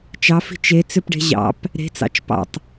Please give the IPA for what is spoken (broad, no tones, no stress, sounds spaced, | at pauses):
t͡ʃ ɑ f i̤ t͡ʃ e t͡s ʏ p ɖ e̤ ʑ ɑ̰ p | ɾ e̤ t͡s ɑ̰ t͡ʃ p ɑ̰ tˤ